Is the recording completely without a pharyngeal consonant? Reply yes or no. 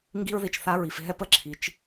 yes